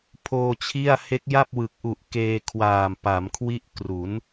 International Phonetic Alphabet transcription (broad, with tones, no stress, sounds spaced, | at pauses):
pʰ oː˧ t͡ɕʰ i˥˩ a̯ h e˦˥ k̚ j a˥˩ p̚ w ɯ˨˩ k̚ ʔ u˨˩ ʔ k eː˧ kʰ w aː˨˩ m p a˩˦ m kʰ w i˥˩ ʔ k r u˩˦ n